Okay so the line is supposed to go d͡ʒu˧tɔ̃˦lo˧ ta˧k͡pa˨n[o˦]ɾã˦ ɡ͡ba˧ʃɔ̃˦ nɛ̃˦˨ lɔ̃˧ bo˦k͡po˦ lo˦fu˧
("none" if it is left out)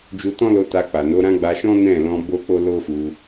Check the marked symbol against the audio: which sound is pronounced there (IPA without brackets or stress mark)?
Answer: o˨˦